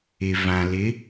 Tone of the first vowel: low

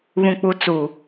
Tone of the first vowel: low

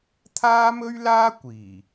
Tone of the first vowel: high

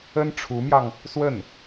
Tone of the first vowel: high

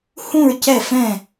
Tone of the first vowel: falling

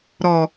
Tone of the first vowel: low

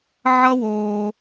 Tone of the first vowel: high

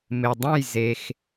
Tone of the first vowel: low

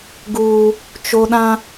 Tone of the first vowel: high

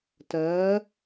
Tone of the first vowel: rising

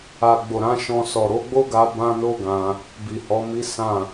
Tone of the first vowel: low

